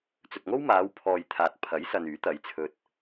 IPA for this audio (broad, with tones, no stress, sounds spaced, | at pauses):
t͡s ɵ˨ t̚ ŋ o˥ w m aː˨˧ w pʰ ɔː˨ j t̪ʰ aː˨ t̚ pʰ ɐ˨˥ j s ɐ˨ n yː˨˥ t̪ ɐ˨˧ j t͡sʰ ɵ˧ t̚